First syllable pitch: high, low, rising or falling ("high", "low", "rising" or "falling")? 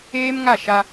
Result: high